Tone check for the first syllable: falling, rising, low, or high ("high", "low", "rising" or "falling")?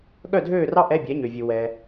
falling